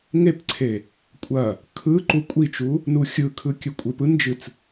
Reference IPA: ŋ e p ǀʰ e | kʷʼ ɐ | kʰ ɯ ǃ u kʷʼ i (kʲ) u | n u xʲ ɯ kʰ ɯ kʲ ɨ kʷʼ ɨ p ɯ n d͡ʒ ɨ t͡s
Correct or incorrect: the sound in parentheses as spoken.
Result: incorrect: t͡ʃ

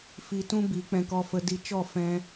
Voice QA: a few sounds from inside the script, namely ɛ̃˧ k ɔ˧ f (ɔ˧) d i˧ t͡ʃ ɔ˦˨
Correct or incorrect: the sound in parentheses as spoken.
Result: incorrect: ə˧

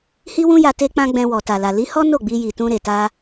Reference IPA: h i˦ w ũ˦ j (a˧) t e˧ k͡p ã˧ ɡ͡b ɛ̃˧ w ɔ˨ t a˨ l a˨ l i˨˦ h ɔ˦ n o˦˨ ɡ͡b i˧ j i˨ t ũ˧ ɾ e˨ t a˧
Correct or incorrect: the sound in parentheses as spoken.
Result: correct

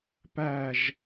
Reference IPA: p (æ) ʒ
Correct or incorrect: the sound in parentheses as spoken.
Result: correct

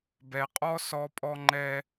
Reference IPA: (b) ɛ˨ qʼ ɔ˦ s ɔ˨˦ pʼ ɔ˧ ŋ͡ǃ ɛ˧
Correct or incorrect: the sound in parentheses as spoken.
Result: correct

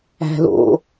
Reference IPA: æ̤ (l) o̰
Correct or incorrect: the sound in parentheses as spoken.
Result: correct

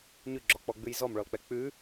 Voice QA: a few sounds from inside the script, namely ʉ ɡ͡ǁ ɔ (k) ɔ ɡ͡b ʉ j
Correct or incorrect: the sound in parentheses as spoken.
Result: incorrect: k͡p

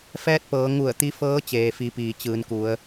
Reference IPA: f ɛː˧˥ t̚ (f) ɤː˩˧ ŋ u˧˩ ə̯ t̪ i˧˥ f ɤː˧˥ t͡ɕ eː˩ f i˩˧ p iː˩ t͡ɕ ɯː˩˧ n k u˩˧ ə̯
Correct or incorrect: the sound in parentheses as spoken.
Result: incorrect: p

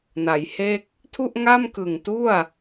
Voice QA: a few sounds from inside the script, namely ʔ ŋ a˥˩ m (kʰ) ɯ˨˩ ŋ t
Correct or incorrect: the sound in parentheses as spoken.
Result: incorrect: k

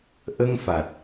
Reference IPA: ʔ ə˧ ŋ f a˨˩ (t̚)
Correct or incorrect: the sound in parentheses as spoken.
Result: correct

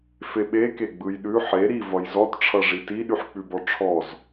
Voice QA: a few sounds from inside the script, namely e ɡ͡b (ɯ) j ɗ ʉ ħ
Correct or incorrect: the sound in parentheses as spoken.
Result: correct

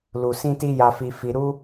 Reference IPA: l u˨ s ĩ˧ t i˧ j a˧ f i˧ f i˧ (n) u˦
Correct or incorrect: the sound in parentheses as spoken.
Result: incorrect: ɾ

